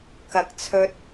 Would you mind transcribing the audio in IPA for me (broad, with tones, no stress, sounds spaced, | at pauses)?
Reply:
k ɐ˨ k̚ t͡sʰ ɵ˧ t̚